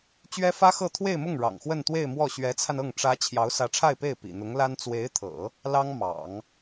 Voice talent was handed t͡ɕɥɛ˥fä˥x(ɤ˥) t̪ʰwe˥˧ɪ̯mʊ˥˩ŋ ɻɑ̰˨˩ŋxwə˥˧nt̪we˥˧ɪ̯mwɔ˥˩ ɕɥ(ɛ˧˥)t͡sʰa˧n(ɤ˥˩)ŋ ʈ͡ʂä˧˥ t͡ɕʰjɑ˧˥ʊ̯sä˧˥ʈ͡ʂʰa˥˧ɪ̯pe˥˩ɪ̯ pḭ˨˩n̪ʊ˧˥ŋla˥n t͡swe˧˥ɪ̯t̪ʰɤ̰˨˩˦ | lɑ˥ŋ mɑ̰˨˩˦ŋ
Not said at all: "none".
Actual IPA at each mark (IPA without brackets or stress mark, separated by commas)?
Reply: ɤ˥˧, ɛ˧˥, ɤ˥˩